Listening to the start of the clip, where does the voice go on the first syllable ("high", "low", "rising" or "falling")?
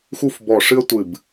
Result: falling